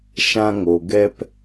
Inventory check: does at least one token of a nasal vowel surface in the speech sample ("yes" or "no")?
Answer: yes